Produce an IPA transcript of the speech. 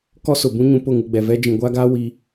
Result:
k ɔ˦ s ʊ˨ b ũ˦ ɲ ũ˨ p ʊ˦˨ ŋ u˨ ɡ͡b ɛ˨ v ɛ˦ d͡ʒ ĩ˨ ɡʷ aː˦ ɡ aː˦ w i˦

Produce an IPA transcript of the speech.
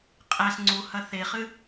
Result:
qʼ æ s ŋ͡ǀ u h ɐ θ e χ ɨ

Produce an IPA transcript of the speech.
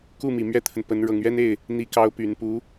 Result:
k u˥˩ m i˨˩ m ɥ ɛ˥ t̪ʰ ə˨ n p ə˧˥ n ɻ ɤ˨˩ ŋ ɥ ɛ˥ n e˥˩ ɪ̯ | n̪ i˧˥ k ɑ˧˥ ʊ̯ p y˨˩ n p u˧˥

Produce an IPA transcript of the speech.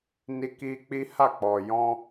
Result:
n i˧ k i˧ k͡p i˦ h a˦˨ k͡p ɔ˨ j ɔ̃˧

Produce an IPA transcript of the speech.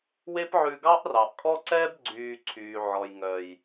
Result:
w e˦ p ʕ ʉ˧ ɡ ɑ˦ ʔ r ɑ˨ ʔ kʼ ɔ˦ ǀ ɛː˦ b ɡ͡ǀ yː˨ ǀʰ yː˨ ʕ ɔ˨ j ŋ œ˨ j

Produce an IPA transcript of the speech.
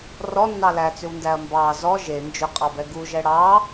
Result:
r ɔ nː ɑ l æ t͡s ʏ w n d æ ɐ̯ m b ɑ z ɔ ʒ e n d͡ʒ ʏ qʼ ɑ b ɛ ɡ u ʒ ɛ ɽ ɑ

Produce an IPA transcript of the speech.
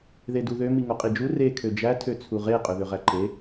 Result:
ð e d u ð ø m i ŋ o qʼ i d͡ʒ u r e kʰ ø d͡ʒ æ tʰ ø t͡sʰ u ʁ e qʼ ø ð ø ʁ æ ǃ e

